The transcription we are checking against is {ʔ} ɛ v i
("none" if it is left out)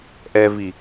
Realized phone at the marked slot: ʔ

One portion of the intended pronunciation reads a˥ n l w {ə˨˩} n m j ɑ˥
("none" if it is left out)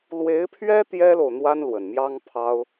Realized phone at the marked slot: ə˨˩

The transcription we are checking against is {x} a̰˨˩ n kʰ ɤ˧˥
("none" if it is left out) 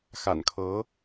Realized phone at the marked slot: x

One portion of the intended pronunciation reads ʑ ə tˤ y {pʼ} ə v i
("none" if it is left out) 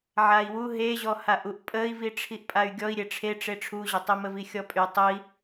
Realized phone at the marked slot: m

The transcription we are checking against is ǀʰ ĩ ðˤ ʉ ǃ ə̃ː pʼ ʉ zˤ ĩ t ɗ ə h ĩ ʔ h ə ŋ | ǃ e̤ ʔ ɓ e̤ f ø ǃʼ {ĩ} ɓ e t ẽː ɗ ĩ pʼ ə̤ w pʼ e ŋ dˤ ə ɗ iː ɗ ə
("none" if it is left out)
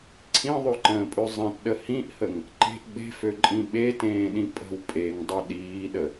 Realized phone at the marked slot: ĩ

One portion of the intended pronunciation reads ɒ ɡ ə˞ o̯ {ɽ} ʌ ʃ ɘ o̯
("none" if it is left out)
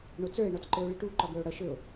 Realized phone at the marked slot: ɽ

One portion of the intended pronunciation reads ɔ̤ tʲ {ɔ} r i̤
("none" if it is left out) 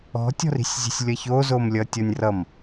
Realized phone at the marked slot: ɔ̤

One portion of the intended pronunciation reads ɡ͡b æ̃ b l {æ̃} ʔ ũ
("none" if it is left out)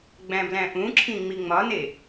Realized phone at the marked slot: æ̃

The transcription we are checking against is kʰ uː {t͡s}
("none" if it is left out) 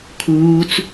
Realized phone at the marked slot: t͡s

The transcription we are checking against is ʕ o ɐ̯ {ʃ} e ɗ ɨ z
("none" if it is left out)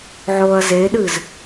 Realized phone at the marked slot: z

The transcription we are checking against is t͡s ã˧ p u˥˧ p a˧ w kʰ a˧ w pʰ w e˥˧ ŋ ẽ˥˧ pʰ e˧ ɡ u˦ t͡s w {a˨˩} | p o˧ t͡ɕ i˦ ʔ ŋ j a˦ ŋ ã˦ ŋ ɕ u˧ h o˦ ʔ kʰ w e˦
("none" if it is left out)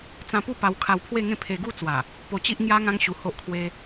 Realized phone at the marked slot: a˨˩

